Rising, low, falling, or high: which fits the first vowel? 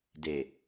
low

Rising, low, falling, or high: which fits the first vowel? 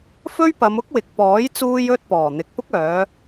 high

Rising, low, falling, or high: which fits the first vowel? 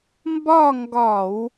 falling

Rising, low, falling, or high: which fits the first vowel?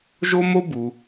high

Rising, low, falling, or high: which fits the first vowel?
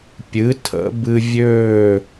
rising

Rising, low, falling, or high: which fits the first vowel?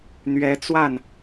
rising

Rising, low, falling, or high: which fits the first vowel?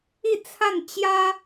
falling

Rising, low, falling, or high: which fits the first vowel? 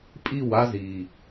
falling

